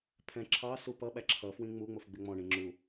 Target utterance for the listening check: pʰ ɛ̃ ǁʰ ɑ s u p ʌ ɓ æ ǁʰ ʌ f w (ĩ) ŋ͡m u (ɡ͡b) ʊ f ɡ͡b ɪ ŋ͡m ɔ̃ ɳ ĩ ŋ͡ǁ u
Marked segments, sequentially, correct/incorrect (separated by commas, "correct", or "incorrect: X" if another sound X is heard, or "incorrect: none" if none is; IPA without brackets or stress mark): correct, incorrect: ŋ͡m